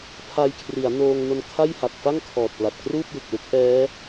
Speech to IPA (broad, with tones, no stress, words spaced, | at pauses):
pʰa˧jkʰri˩˦a̯noː˧ŋ no˧nkʰa˥˩jha˨˩k̚ fa˥˩ŋkʰɔː˨˩t̚pla˨˩t̚ kruː˥˩p̚jɯ˨˩k̚lu˦˥k̚ ʔɛː˦˥